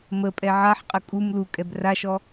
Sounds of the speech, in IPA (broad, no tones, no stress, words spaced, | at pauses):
məpʼɛ ʕaħqʼə kʼum lukʼɛb raʃɔ